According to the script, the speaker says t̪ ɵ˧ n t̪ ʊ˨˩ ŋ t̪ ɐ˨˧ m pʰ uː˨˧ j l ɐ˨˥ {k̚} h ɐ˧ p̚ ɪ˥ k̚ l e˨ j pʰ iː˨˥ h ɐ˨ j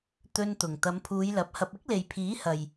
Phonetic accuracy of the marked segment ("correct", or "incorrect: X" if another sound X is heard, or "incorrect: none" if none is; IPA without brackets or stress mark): incorrect: p̚